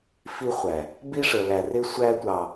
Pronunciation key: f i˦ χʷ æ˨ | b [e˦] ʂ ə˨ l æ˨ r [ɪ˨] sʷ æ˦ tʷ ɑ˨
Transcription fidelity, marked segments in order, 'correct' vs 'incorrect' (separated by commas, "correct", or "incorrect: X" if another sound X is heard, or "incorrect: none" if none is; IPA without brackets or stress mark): incorrect: i˦, incorrect: ɪ˦